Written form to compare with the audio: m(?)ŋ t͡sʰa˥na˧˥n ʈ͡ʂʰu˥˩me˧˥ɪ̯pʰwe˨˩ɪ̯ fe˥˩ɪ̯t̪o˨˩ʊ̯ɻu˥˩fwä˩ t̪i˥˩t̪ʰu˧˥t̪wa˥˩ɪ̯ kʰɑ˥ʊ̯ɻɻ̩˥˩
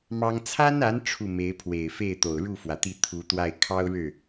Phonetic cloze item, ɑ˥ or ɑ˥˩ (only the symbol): ɑ˥